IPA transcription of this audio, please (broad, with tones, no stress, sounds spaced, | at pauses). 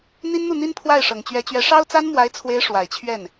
n̪ i˥ n n̪ u˥˩ n̪ i˥ n pʰ w a˥˩ ɪ̯ ʂ ɤ˨˩ ŋ t͡ɕ ɥ ɛ˧˥ t͡ɕ ɥ ɛ˧˥ ʂ ɑ˥ ʊ̯ t͡s a˥ n m w a˧˥ ɪ̯ t͡sʰ w e˧˥ ɪ̯ ʂ w a˨˩ ɪ̯ t͡ɕʰ ɥ ɛ˥˩ n